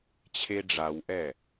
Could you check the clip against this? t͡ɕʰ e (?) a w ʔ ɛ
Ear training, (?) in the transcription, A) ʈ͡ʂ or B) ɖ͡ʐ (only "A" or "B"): B